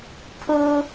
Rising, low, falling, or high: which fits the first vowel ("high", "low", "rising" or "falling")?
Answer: high